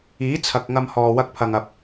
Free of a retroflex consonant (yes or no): yes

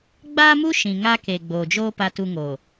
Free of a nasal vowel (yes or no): no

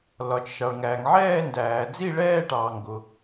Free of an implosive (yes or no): yes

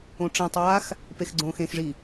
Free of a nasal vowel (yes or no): no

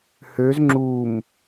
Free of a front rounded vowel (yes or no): no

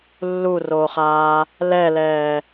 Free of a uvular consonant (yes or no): no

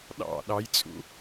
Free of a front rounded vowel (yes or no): yes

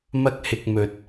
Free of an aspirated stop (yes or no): yes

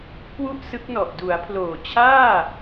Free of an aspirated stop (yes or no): no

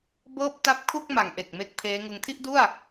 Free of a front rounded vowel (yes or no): yes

